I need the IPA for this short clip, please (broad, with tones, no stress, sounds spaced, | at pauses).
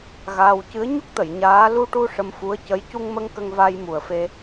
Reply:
ɣ aː˧ w c ɨ˧˥ ə̯ ɲ u˦˥ k̚ t̪ ə˨˩˨ j ɲ aː˧˥ l u˧ ʈ u˧ ʂ ə˧ m f u˧˥ ə̯ c ə˧˥ j c u˧ ŋ m ə˧ ŋ k ə˧ ŋ v a˧ j m u˨˩ ə̯ f e˧